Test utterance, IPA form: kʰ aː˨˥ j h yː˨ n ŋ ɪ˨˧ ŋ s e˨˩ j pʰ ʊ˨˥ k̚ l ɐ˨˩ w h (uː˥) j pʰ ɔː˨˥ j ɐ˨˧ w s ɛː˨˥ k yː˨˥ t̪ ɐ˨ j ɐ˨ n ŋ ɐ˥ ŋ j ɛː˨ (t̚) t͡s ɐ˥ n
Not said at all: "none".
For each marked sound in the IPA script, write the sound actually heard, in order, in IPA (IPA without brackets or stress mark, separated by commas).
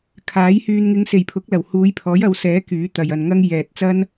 uː˨˧, t̚